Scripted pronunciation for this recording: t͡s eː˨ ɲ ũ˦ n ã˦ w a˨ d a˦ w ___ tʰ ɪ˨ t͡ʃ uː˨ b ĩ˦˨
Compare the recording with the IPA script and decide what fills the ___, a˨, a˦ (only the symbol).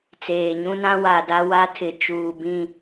a˦